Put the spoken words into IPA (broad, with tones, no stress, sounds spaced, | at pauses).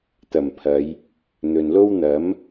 t̪ ɐ˨˩ m pʰ ɐ˨˧ j | n̪ ɵ˨ n l o˥ w n̪ ɐ˨˥ m